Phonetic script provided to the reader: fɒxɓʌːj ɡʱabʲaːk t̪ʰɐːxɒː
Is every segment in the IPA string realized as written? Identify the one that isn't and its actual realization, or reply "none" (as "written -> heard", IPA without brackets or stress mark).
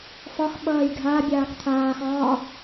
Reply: ɐː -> aː